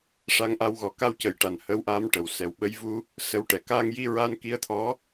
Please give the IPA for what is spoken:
ʂ a˧ ŋ ʔ a˧ w ɣ ɔ˨˩˦ k a˧ w c ə˨˩˦ j ʈ a˨˩ n h ə˧ w ʔ aː˧ m ʈ ə˨˩ w s ɛ˨˩ w ɓ ə˧ j v u˧ | s ə˧˥ w ʈ ɛ˨˩ k aː˧ ŋ j i˧ ɹ a˧ n k i˧˥ ə̯ t̪ʰ ɔ˧˥

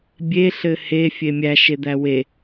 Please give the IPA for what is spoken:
bʲ e ɬ ɘ h e fʲ e mʲ æ ʃ e d̪ æ w e

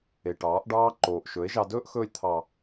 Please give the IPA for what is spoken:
e˨ ʈ ɑː˨˦ ʔ ɖ ɑː˦ ǃ oː˨ ʔ ʃ ɵ˨˦ e̯ ʒ ɑ˧ d ɵː˦ ʔ x ɵː˧ lʲ t̪ʰ ɑ˨

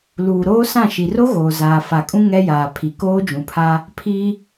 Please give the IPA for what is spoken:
l uː˨ ɾ oː˦ s ã˦˨ ʃ i˨ r o˦ ɣ oː˨ z aː˨ f a˨ kʼ ũ˦ ŋ ɛ˦ j aː˨ pʰ i˨ k oː˦ d͡ʒ ũ˨ pʰ a˦ | pʰ i˦

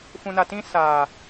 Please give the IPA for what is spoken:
f ũ˨ n a˨ t ĩ˧ s a˨

